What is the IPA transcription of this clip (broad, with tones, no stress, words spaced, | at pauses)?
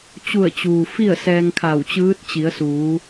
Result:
t͡ɕu˧˩ə̯t͡ɕuː˩ fi˥˨ə̯sɛː˧ŋkʰa˧˩wt͡ɕɯː˧˥t̚ t͡ɕi˩˧ə̯suː˩˧